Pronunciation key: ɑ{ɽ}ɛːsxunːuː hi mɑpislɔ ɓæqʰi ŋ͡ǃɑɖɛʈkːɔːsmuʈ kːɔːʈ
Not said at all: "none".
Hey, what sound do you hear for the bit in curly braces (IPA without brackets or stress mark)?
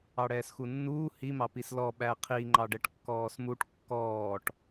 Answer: ɽ